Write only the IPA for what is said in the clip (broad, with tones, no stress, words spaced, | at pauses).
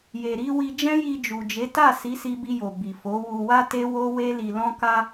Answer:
je˨ɾi˧wi˧ d͡ʒɛ̃˦ji˧ d͡ʒu˨d͡ʒe˨˦ ta˦˨si˨˦si˧ bi˧jo˨ bi˨ fo˨˦wu˧ wa˦te˦wo˦ we˦li˧ lɔ̃˦ka˦